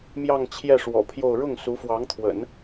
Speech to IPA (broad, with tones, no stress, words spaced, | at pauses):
mjɑ˥˧ŋt͡ɕʰjɛ˥˩ʂwɔ̰˨˩pʰjo˥˧ʊ̯ ɻʊ˥˩ŋsu˧˥fwɑ˧˥ŋt̪ʰwə̰˨˩˦n